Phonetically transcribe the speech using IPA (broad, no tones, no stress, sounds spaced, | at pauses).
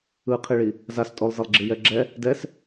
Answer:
ɯ qʰ i ɭ i | z a s tʼ o lˠ z e lˠ ɡ͡ǁ i j ɛ ɡ͡ǁ ɛ | d ɛ s